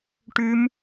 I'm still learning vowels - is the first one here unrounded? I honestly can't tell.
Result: no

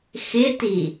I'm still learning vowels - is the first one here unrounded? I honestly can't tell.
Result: yes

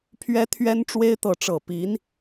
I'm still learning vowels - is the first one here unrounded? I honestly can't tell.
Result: yes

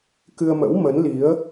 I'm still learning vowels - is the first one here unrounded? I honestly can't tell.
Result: yes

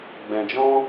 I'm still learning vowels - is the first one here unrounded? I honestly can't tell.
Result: yes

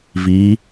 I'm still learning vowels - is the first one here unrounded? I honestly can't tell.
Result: yes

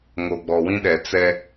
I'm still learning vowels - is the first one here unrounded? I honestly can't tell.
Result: no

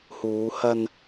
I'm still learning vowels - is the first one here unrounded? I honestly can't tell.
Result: no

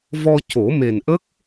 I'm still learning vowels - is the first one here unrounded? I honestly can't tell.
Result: no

